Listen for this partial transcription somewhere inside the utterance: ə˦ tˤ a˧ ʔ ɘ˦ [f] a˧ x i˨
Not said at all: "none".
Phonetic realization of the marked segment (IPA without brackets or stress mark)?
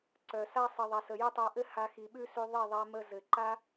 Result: h